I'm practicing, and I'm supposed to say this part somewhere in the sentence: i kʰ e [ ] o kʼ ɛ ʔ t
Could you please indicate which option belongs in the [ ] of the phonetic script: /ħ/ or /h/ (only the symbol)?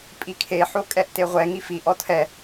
ħ